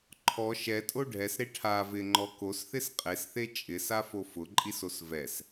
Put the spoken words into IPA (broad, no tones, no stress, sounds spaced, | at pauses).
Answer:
ǃʰ ɔ ʃ ɛ tʼ o ɖʱ ɛ s ɾ e ʈʰ a v ɪ ŋ͡ǃ ɔ k o s θ ɪ s qʼ e s θ e t͡ʃʼ ɪ s a f o f ʊ ǃʼ i s o s v ɛ s